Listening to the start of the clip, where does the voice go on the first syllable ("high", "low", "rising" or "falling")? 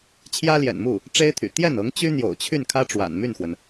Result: high